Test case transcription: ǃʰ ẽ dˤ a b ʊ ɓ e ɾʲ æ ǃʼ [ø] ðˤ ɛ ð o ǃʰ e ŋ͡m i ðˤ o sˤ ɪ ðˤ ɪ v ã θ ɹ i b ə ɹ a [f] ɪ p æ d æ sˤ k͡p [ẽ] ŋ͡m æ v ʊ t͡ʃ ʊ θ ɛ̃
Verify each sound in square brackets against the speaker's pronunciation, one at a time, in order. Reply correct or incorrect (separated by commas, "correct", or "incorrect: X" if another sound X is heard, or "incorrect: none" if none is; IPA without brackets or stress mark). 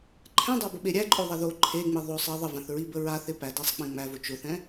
correct, incorrect: θ, correct